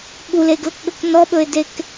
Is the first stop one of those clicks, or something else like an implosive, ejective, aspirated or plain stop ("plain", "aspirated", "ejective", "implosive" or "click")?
implosive